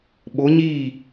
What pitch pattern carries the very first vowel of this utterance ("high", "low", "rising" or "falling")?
rising